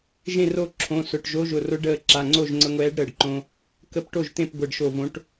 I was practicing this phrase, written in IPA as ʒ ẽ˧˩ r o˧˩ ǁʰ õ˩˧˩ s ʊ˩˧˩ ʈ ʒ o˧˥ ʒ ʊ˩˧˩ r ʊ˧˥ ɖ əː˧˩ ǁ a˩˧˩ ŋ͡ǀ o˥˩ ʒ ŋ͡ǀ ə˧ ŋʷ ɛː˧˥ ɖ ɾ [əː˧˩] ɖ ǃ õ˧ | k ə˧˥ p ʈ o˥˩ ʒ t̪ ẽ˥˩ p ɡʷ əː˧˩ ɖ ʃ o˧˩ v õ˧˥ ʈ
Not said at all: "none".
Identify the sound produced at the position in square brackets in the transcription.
əː˧˩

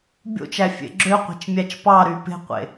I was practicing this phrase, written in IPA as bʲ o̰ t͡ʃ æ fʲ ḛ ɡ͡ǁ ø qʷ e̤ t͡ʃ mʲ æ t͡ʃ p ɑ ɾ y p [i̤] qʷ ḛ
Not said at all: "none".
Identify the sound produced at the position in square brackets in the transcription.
e̤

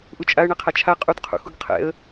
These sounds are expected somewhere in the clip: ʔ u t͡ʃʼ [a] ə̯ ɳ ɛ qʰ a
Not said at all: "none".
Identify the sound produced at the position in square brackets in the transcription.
a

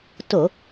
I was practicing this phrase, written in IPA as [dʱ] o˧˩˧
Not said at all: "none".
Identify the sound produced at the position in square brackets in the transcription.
t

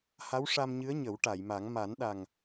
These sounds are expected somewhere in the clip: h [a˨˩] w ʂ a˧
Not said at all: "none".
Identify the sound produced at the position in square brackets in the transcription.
a˧˥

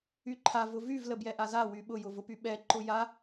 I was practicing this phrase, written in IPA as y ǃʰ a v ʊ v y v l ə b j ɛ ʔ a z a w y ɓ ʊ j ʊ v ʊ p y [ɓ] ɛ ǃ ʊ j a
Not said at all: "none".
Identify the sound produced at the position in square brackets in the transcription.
ɓ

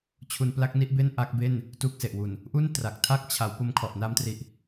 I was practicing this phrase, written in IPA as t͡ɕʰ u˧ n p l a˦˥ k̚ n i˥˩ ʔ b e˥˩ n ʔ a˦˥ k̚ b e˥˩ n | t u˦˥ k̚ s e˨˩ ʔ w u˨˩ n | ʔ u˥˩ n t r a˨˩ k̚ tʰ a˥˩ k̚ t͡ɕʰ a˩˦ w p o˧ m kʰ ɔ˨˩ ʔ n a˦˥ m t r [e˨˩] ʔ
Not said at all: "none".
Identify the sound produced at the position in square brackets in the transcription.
i˨˩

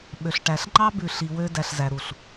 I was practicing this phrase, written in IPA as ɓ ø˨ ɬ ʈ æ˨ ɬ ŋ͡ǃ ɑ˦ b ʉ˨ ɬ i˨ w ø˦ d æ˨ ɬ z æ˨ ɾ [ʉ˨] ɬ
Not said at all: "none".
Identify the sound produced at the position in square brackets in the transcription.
u˨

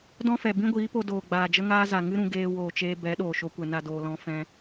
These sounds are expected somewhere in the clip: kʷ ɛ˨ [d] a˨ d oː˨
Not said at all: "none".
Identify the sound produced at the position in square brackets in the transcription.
n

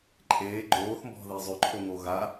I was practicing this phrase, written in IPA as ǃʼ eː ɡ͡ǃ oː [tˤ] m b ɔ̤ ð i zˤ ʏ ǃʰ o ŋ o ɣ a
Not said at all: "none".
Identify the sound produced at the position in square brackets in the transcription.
θ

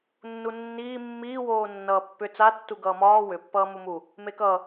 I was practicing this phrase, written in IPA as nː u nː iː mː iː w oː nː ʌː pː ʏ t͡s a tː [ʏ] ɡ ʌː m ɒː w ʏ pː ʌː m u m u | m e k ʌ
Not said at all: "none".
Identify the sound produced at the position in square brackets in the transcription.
u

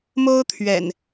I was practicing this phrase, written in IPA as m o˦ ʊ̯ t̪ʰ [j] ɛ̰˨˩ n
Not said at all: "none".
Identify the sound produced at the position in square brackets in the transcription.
ɥ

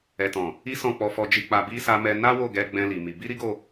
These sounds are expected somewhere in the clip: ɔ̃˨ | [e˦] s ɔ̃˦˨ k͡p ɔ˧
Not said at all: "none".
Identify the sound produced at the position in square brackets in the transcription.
i˦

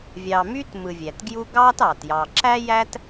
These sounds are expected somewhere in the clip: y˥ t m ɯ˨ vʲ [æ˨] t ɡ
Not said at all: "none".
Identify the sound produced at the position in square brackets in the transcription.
æ˩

